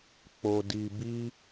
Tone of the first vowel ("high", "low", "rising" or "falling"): low